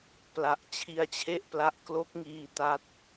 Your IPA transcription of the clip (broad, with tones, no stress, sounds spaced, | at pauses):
p l a˨˩ ʔ t͡ɕʰ i˧ a̯ t͡ɕʰ e˥˩ ʔ p l a˦˥ ʔ k l o˦˥ k̚ ŋ iː˧ t a˦˥ t̚